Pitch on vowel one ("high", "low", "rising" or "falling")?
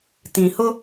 low